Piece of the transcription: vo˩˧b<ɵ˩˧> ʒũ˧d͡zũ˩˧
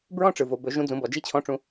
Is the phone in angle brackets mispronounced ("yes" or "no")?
no